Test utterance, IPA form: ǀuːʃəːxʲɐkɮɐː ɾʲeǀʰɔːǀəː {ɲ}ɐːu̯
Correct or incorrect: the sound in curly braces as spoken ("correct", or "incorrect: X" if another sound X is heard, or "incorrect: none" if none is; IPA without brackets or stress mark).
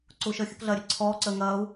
incorrect: ŋ